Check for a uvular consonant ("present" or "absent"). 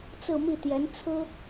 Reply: absent